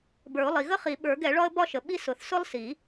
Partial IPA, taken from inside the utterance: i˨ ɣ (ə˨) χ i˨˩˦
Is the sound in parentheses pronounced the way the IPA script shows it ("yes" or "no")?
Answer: no